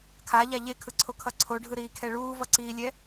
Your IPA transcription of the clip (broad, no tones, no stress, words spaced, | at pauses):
kʰaʎa ʎekʰɯǀʰokʰʌ ǀʰoɖʱɯɾiːkʰɛ ɭuːvʌǀiːlʲɛ